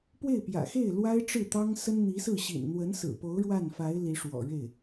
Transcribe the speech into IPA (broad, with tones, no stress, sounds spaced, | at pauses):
p w e˥˩ ɪ̯ p j ä̰˨˩ x e˥˩ ɪ̯ l w a˥ ɪ̯ ʈ͡ʂ ɻ̩˥˩ t̪ ɑ˥ ŋ s ə˥ n n̪ i˧˥ s ɹ̩˥˩ ɕ ḭ˨˩ n n̪ w ə˧˥ n s ɹ̩˨˩ p o˧˥ ʊ̯ ɻ w a˥˩ n f a˧˥ ɪ̯ l i˧˥ ʂ w ɔ̰˨˩ ɻ e˥˩ ɪ̯